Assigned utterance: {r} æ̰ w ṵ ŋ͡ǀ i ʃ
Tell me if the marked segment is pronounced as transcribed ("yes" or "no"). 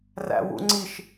yes